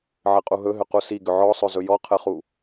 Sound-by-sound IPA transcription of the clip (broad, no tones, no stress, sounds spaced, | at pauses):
ʕ ɘ qʼ u ɦ ɵ ɦ ʏ q u s i ɡ ʏ ʕ ɔ sˤ ɵ z ɵ j ɔ qʰ ɘ χ u